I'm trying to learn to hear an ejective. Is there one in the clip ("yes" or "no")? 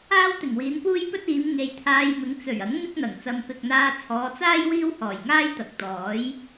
no